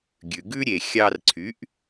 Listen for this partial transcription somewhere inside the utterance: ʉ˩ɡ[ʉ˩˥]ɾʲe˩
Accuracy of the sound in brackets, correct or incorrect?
incorrect: ʉ˥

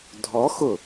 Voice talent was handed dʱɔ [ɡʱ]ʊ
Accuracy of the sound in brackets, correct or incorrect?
incorrect: x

